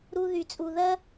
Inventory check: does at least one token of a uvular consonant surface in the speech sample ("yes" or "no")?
no